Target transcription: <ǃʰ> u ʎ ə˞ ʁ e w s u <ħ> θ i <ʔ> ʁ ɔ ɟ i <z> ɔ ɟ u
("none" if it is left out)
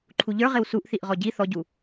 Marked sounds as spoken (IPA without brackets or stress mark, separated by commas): ǃʰ, ʔ, ʔ, θ